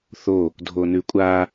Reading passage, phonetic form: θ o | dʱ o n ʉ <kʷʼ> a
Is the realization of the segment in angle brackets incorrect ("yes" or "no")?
no